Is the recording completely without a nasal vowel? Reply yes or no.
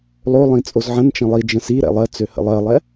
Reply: no